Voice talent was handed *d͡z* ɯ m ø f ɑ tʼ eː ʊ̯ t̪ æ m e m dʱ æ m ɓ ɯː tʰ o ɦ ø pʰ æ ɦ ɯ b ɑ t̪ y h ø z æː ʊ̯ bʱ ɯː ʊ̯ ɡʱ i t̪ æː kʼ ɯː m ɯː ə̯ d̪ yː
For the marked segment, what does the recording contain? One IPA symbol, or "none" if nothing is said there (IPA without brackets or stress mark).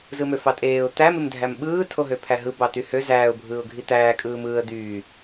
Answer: z